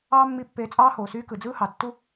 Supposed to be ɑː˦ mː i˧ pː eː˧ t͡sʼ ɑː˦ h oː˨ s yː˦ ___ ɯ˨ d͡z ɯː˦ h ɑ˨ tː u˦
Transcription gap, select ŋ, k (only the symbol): k